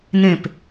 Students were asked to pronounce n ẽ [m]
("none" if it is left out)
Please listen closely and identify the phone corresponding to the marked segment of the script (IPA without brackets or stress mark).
p